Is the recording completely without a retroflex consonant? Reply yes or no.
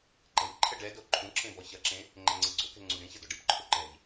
no